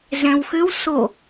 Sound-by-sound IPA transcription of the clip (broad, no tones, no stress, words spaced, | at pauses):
zɛ̃wxʏw so